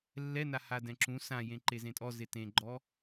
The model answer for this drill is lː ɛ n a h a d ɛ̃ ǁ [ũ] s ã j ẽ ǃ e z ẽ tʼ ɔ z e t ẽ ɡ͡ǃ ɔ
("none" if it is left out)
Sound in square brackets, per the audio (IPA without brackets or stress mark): ũ